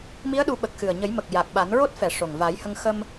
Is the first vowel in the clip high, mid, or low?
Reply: high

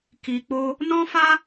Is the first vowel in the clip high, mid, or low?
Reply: high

